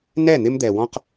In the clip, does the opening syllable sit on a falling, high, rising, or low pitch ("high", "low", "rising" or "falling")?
falling